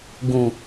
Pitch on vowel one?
low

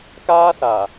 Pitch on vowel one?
high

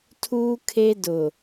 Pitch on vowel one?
high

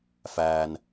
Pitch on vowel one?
high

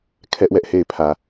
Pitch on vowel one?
high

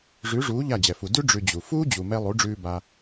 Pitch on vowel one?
rising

